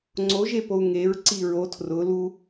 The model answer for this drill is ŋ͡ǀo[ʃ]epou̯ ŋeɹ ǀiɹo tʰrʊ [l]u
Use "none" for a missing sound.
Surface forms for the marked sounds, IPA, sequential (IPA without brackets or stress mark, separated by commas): ʒ, l